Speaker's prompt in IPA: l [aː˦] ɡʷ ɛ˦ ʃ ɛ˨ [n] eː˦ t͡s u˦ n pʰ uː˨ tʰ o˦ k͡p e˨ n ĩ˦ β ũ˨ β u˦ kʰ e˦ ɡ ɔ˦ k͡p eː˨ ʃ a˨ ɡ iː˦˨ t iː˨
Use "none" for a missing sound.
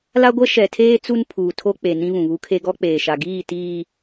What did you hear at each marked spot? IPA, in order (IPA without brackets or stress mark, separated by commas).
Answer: a˦, tʰ